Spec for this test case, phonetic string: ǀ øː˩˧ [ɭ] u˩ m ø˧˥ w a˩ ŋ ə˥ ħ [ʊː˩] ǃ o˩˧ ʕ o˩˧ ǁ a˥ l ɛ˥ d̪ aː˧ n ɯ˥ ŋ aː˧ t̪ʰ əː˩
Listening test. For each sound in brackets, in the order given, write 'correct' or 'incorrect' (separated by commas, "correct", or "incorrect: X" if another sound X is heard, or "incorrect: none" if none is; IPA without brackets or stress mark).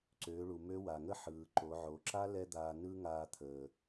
correct, incorrect: ɯː˩